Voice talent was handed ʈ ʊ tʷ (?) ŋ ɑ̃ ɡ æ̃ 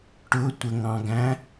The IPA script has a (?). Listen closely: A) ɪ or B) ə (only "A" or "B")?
B